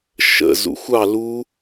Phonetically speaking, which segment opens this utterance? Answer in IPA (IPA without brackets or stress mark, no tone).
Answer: ʃ